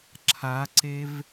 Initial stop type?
click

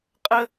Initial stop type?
ejective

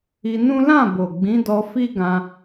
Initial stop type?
plain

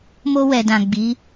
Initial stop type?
plain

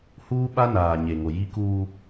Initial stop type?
implosive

